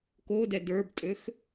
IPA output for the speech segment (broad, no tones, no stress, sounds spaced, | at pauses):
k o d ɛ d ə˞ b tʼ ø x